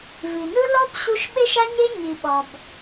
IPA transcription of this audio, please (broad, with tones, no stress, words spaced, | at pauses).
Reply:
vi˨nɯ˦ lɔ˦b ɕu˦ʃ ɓe˦ʃa˦ɲe˦ ɲi˧ɓɔ˧b